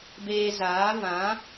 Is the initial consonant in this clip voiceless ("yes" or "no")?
no